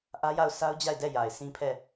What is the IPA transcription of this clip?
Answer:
ʔ ä˦ j a˦˨ ʊ̯ s a˦ ʊ̯ d͡ʑ a˦˨ ɪ̯ d ɛ˦˨ j a˨ ɪ̯ sʰ ĩ˦ pʰ ɛ˦˨

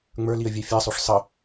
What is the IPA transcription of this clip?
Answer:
ŋ͡m ə˞ l i ə̯ vʲ ɛ fʲ ɛ sˤ o ʂ sˤ ə

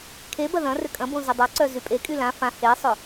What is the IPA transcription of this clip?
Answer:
kʰ e b ɐ ð ɐ̃ r ʏ kʼ ɐ̃ b õ z ʏ dˤ a ǀ œ z y pʼ e kʼ y l ã f ã h e sˤ ʊ

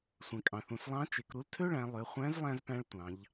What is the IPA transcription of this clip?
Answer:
sʷ ẽ˩ kʼ ɑ̃˩ θ ũ˩ s lˠ ɑ̃˧˥ t͡ʃ e˩˧ k ɾ u˧˥ l tʰ ø˥ ɭ æ̃˩˧ lˠ ø˩˧ χʷ æ̃˧˥ z lˠ æ̃˧ z p æ̃˧ ɭ tʷ ɑ̃˩˧ ʎ

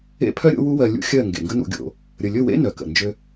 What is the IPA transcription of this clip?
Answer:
ḛ˦ pʰ œ˦ ɾʲ o̰˦ w u˦ w ɜ˧ lʲ ṵ˦ xʲ ɜ˦˨ ŋ ɡ ḛ˨ ŋ ɡ ə˦ n ṵ˧ ɡʲ o̰˧ | ɾʲ ə˨ lʲ ɵ˦˨ w ḛ˦ n œ˨ k ə̰˨ n d͡ʒ ø˦

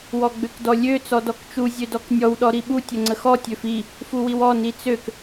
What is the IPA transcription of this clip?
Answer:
w ɔ ɡ͡b ø k d ɔ lʲ ø t͡s ɔ d ɔ k t͡ʃ u zʲ ø d ɔ k nʲ ɔ w ɗ ɔ ɾ i ɓ u tʲ ə ŋ͡ǀ ə x ɔ tʲ ø f i | f u w i w ɔ n i t͡s ø k

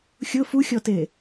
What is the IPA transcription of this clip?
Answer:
xʲ ʊ f u xʲ ɔ t e

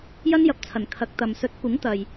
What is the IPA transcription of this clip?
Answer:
j ɐ˥ n j ɐ˨ p̚ t͡sʰ ɐ˨˩ n kʰ ɐ˨˥ k̚ t̪ ɐ˨ m s ɵ˨˥ t̚ kʷ ɪ˨˥ ŋ t̪ ɐ˨ j

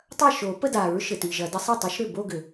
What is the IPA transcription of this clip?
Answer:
tˤ ɐ˥˩ ʃ o˨˩˦ p ə˥˧ d a˨˩˦ ɹ ʃ ɘ˨ t i˨ ʒ ɐ˨˩˦ d ə˧˥ sˤ ə˥˩ tˤ a˧˥ ʃ ɾ ʏ˥˩ b o˥˧ ɡ ʏ˨˩˦

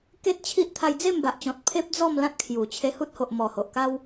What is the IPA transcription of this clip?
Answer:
k e˦ t̚ t͡ɕʰ i˦ ʔ t̪ʰ a˧ j d͡z e˥˧ m b a˨ ʔ t͡ɕ ɔ̃˨ t̚ pʰ e˦ p̚ d͡z ɔ˥˧ m l ã˦ t̚ kʰ j u˨˩ t͡ɕʰ e˧ h u˦ t̚ h o˨ ʔ m ɔ˨˩ h o˨ ʔ k a˦ w

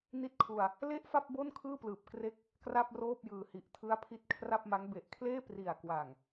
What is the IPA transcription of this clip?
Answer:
n i˥˩ t̚ kʰ u˧ a̯ | l e˥˩ ʔ f a˥˩ p̚ b o˥˩ n kʰ ɯː˥˩ p l ɯː˨˩ p̚ k r e˦˥ k̚ | k r a˥˩ p̚ r oː˥˩ p̚ j ɯː˨˩ h i˨˩ ʔ tʰ ɯ˦˥ a̯ pʰ i˦˥ t̚ kʰ r a˥˩ p̚ m a˦˥ ŋ b e˨˩ ʔ kʰ l eː˥˩ p r i˨˩ a̯ k w a˨˩ ŋ

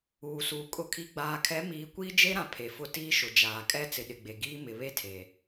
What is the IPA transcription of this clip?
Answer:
uː˨ s uː˨ kʼ ʊ˨ kʰ i˨ ɡ͡b aː˨ kʰ ɛ˨˦ m iː˨˦ kʷ iː˦ d͡ʒ e˦ ɾ ã˨ pʰ e˨ f ʊ˦ t iː˦ ʃ ʊ˨ d͡ʒ aː˨ kʼ ɛ˦ t͡s ɪ˨ ɗ ɪ˨ ɡ͡b e˨ ɡ iː˦ m ɪ˨ β e˦ tʰ e˨

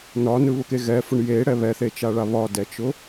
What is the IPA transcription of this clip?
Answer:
n ɒ n ɯ β ʊ k e ɣ ɛ f ʊ ɳ j e ɽ ɛ β ɛ θ e t͡ʃ a ɭ a β ɒ d ɛ t͡ʃ ʊ

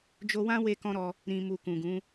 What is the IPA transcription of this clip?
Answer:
d͡ʒ o˧ w ã˦ w e˦ k ɔ̃˦ ɾ ɔ˧ | ɾ ĩ˨ m u˨ k ũ˨ ɡ ũ˨˦

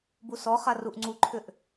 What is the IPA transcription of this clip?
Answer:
b u s ɔ χ a r u ʔ ŋ͡ǀ u ǃʰ ʏ ʔ

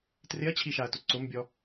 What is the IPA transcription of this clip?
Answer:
t r ɪ ɐ̯ t͡ɕʰ i ʃ a ɐ̯ t ʊ ǀ ʊ m bʲ ɔ

